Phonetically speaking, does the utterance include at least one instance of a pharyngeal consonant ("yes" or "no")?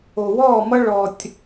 no